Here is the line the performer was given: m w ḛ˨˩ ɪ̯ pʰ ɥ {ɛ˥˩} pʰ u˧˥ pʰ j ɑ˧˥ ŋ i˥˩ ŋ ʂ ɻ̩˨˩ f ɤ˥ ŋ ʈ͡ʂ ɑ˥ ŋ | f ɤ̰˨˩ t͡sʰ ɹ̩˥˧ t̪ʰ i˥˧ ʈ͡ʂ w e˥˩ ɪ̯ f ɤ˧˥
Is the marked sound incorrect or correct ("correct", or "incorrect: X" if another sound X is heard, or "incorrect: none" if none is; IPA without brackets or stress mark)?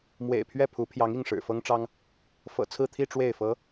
correct